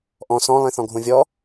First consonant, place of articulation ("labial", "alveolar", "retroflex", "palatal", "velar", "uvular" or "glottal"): glottal